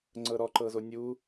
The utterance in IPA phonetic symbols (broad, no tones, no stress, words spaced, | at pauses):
ŋ͡ǀɤɾɔǃɤzo nʲu